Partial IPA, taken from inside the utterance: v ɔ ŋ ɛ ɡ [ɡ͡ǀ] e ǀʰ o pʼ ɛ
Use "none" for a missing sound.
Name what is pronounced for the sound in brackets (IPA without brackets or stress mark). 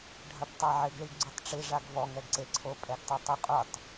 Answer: ǀ